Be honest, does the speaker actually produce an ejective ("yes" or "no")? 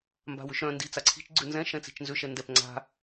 no